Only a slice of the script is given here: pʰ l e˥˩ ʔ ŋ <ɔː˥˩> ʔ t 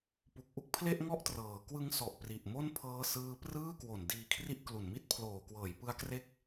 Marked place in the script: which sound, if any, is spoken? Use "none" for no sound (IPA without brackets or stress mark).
ɔ˥˩